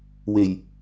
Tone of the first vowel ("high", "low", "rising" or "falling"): low